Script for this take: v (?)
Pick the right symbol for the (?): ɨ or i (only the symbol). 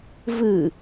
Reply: ɨ